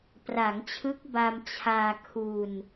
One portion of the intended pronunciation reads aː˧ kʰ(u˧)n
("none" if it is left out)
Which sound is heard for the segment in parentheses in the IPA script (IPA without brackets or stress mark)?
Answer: u˧